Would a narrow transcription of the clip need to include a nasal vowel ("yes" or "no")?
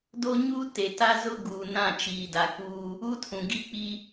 yes